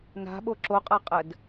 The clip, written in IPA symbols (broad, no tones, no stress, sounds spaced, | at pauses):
n a̤ ɓ o ǁ o qʼ a qʼ ə d